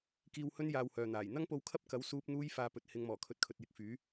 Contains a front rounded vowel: yes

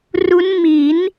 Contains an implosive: no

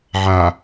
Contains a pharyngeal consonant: yes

